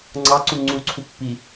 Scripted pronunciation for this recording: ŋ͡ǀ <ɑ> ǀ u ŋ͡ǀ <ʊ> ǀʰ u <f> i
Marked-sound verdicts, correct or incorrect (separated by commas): correct, incorrect, incorrect